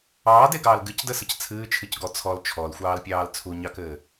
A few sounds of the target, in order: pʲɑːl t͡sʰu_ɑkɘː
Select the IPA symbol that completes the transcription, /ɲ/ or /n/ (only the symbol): ɲ